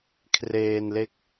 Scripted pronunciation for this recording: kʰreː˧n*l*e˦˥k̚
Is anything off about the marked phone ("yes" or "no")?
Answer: no